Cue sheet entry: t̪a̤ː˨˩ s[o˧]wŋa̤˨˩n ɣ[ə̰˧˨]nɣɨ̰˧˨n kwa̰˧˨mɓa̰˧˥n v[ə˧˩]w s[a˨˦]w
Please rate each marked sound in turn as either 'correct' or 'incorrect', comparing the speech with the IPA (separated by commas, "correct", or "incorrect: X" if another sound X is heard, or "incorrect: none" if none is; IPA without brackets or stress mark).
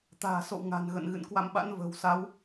incorrect: o̰˧˨, correct, incorrect: ə̤˨˩, correct